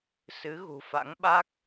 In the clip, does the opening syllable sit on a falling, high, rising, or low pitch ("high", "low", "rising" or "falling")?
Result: rising